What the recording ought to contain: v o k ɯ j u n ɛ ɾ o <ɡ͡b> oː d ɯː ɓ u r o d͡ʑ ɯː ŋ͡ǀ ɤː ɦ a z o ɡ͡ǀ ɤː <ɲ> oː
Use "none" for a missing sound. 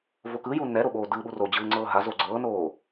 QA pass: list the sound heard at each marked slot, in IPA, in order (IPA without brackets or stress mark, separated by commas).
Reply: ɓ, n